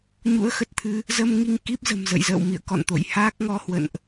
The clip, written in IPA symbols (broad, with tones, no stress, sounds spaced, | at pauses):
ɲ ṵ˧˥ ə̯ x ə˨˩ t̚ t̪ʰ ɨ˧ | z əː˧ m ŋ i˧ ŋ k i˦˥ p̚ z ə̤˨˩ m z ə̰˧˨ j z ə̰ː˧˨ w m ḭ˧˨ ə̯ k ɔ̰˧˨ n t̪ o̰˧˨ j h aː˦˥ k̚ ŋ ɔ˨˦ h w ə̰˧˨ n ʔ